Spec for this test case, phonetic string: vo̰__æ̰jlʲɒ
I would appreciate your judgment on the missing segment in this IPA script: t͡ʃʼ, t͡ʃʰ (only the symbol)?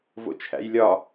t͡ʃʰ